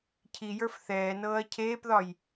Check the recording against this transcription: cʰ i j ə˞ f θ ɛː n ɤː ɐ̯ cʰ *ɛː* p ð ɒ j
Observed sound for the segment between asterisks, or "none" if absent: eː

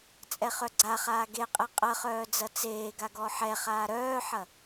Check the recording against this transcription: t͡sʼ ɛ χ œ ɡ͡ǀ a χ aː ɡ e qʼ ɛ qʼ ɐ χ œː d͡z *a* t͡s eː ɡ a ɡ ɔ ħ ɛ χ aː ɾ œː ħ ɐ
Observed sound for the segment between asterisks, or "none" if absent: ɐ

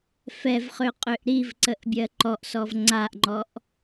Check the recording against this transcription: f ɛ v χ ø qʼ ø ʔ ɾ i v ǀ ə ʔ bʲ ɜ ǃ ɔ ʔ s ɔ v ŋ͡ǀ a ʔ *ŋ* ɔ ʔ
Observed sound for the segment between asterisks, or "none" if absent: ŋ͡ǃ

